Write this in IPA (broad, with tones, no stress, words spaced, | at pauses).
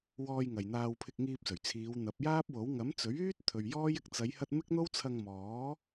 wɔː˧jŋɐ˨jn̪aː˧w pʰɪ˧k̚ŋiː˧p̚ sɵ˨˩ɥt͡sʰiː˨˧wn̪ɐ˨˥p̚ jaː˥p̚wo˨˥w ŋɐ˨˥mt͡sɵ˨˥ɥyː˥t̚t̪ʰɵ˨ɥ jɔː˥jɪ˧k̚ t͡sɐ˨˧jhɐ˧t̚ mɪ˥k̚n̪o˥w t͡sʰɐ˧ŋmɔː˨˥